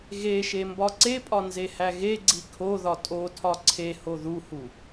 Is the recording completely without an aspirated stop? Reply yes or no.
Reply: no